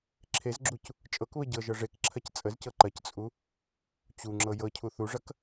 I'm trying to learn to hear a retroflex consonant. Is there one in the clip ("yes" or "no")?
yes